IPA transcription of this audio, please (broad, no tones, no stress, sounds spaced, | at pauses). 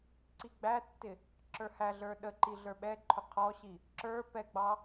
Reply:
ǀ i ɡ͡b æ tː ɪ | ǁ ə˞ h æ ɮ ə˞ ɗ ə ǃ i ɮ ə˞ ɓ ɛ ǃʰ ʊ qʰ ɔ ɕ i | ǁ ə˞ p ɛ ɡ͡b ɑ